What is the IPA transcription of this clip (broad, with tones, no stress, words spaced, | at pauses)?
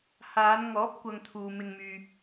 haː˨˧nŋɔː˨˥p̚ kʷɐ˧ŋt̪ʰuː˨mɪ˧ŋmyː˧